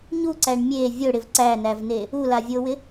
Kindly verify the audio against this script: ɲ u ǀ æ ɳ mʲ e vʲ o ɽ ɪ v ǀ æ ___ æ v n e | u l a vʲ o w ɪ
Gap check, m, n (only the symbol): n